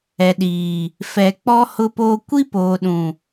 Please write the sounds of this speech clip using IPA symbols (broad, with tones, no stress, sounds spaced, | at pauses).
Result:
ɛ˨ ɗ iː˨ | f ɛ˨ k͡p ɔ˦ h ʊ˦ p oː˦ kʷ i˦ p oː˨ ɗ ũ˨